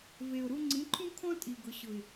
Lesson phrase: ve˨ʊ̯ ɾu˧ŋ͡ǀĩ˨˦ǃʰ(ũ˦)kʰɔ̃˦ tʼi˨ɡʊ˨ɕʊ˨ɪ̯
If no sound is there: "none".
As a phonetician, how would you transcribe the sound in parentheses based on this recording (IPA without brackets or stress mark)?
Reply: ũ˦